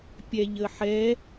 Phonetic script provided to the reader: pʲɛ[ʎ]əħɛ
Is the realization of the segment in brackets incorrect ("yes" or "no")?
no